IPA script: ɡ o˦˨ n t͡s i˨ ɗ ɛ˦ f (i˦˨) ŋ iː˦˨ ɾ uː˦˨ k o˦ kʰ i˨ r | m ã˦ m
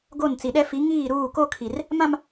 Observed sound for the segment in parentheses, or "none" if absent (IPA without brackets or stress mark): i˨˦